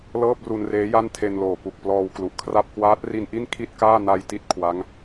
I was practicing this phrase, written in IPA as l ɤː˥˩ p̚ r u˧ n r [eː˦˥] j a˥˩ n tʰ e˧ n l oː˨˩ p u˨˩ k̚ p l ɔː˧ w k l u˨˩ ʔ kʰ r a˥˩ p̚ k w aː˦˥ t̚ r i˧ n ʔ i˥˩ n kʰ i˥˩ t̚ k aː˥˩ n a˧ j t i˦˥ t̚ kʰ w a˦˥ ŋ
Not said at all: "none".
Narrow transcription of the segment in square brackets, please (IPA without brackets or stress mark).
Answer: eː˦˥